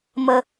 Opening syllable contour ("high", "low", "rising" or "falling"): high